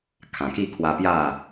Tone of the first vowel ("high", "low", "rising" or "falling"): low